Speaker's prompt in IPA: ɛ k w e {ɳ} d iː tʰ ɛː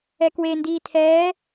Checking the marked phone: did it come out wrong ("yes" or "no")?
yes